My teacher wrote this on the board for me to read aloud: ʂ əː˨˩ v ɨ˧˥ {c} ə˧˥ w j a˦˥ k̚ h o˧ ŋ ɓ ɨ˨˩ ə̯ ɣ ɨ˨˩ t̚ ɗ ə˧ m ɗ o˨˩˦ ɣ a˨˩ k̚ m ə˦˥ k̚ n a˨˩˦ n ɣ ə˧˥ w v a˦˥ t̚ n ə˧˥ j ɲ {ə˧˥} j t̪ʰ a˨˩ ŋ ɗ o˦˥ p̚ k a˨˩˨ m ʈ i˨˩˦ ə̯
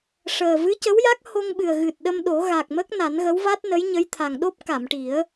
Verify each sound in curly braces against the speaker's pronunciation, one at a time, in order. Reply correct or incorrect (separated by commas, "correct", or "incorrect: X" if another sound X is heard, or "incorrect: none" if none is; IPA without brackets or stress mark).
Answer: correct, correct